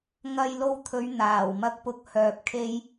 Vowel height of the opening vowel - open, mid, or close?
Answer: open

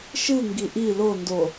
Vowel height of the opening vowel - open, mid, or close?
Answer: close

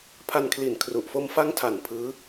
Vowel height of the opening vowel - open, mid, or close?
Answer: open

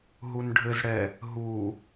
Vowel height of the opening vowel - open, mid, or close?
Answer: close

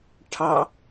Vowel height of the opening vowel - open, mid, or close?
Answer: open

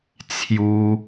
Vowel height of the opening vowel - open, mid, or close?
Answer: close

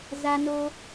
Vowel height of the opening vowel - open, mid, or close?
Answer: open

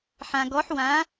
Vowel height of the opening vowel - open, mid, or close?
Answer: open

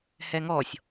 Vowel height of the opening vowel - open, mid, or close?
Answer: mid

